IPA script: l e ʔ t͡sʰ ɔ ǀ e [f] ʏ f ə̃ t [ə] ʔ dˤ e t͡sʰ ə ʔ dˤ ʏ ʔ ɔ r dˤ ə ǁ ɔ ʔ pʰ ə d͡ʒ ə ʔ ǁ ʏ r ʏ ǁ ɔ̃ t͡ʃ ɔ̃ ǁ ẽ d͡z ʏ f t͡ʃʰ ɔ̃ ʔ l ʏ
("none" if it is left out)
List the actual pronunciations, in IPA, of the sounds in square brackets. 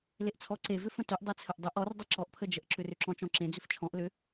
v, ʏ

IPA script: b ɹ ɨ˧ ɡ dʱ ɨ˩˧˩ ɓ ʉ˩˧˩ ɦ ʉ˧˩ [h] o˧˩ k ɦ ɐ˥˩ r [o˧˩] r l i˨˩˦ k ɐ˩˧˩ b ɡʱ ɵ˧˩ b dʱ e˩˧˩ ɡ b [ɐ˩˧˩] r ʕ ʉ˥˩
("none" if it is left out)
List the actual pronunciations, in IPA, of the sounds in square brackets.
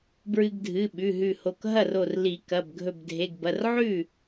h, o˧˩, ɐ˩˧˩

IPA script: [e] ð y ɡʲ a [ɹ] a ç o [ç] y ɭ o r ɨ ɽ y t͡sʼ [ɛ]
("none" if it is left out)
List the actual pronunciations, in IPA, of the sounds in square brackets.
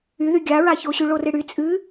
y, ɹ, ɕ, ɨ

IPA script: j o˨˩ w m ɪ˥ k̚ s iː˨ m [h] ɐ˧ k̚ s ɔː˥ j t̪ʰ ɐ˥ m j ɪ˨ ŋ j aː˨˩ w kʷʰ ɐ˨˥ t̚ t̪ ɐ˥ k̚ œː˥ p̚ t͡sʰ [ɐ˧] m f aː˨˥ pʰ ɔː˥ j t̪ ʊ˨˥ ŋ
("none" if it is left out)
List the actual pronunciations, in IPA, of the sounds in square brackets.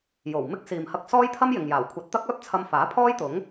h, ɐ˧

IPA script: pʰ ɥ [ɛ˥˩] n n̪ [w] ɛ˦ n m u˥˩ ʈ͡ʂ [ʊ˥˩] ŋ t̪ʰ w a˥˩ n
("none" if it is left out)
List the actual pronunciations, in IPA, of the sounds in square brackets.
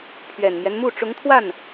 ɛ˨˩, j, ʊ˧˥

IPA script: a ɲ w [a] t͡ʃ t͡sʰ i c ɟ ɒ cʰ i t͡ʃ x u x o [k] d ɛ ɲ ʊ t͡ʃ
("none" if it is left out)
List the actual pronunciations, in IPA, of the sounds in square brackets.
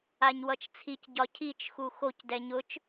ʌ, c

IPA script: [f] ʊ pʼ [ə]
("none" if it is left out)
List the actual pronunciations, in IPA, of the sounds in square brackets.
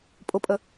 pʼ, ə

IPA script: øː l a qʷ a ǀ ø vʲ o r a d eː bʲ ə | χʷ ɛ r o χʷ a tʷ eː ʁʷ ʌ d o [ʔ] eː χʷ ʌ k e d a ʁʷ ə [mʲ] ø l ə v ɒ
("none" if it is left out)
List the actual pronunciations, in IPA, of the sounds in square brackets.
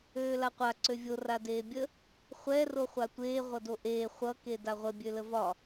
ʔ, bʲ

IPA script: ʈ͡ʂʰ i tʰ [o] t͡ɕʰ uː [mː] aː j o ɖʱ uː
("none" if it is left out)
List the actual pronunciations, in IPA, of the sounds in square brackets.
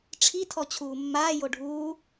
ɔ, mː

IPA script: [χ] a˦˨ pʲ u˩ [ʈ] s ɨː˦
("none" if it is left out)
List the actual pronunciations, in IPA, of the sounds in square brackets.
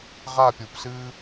ʁ, p

